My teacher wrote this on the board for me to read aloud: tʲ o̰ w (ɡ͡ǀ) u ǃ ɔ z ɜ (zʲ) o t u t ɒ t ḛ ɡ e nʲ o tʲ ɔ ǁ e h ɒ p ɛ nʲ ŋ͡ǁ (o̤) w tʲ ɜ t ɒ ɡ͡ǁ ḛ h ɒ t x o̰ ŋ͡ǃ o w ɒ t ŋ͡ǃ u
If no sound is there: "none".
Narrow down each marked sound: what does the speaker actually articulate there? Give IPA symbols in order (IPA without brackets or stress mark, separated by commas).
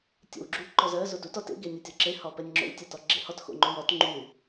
ɡ͡ǁ, z, o̰